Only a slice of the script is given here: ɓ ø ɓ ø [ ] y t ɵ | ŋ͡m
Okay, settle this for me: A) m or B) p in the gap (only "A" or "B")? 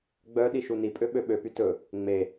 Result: B